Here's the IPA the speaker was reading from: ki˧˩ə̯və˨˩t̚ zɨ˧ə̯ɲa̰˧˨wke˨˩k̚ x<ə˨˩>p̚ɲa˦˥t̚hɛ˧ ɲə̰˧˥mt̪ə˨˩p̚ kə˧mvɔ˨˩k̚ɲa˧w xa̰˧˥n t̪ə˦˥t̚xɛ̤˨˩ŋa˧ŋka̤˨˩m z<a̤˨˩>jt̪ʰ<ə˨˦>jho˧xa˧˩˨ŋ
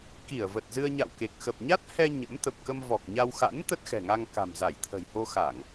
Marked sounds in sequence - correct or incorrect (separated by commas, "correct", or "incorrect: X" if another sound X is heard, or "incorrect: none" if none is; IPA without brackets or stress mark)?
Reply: correct, incorrect: a˧˩, incorrect: ə̤˨˩